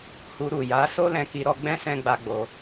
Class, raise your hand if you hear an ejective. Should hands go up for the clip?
no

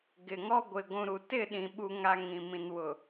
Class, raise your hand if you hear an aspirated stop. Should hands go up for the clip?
no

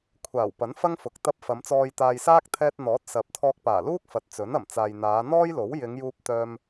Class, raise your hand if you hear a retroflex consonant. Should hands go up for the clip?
no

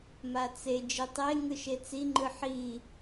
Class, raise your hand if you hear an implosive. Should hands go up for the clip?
no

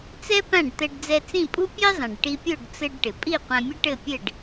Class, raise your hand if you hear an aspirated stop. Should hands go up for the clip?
no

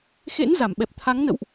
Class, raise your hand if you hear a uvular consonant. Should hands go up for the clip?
no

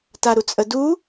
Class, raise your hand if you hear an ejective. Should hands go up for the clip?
yes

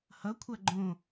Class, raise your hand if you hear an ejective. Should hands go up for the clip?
no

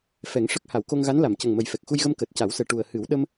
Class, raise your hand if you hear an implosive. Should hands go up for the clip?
yes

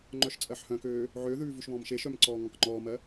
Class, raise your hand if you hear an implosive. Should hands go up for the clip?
no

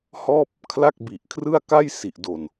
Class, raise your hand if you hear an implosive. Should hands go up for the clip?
no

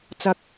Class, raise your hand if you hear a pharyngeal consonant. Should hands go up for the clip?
no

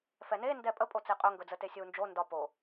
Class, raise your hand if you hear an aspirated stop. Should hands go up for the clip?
no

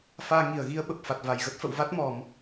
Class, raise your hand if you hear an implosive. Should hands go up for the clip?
yes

